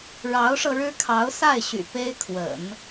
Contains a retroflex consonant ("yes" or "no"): yes